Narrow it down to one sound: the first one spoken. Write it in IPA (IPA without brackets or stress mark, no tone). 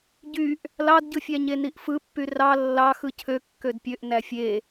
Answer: ɟ